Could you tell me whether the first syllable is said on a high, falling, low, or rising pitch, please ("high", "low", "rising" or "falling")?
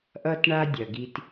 high